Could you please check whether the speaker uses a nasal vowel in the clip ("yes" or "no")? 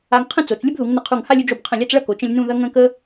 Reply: yes